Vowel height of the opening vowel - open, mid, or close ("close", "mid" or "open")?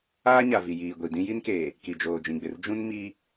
open